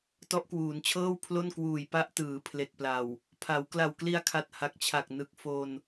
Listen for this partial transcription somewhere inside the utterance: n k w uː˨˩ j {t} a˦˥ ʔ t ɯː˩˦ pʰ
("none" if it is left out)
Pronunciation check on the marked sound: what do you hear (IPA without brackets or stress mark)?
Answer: p